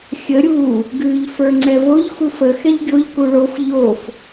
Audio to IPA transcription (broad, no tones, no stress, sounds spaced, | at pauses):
xʲ ə ɾʲ u | ɡ ʉ ʎ f ə˞ ŋ͡ǀ ɛ v o ʎ x u f ə x ɛ ʎ ɡʲ o ʎ k u ɭ o f ʎ o f